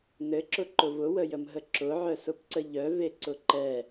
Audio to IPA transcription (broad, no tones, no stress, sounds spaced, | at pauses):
n ɘ ǁ ʊ ǃ ʊ v ʊ w ə j ə m ɦ ə ǁ ʊ ʕ œ s ʊ p ǀ ə ʎ œ v e ǀ ʊ ǃ ɛ